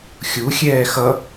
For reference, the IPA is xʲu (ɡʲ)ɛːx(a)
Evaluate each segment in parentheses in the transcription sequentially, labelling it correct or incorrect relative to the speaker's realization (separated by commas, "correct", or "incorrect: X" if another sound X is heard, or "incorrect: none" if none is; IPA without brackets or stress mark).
incorrect: xʲ, incorrect: ʌ